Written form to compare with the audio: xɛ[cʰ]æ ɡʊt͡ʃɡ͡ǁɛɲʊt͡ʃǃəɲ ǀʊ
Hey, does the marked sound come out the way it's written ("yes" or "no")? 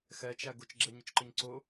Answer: no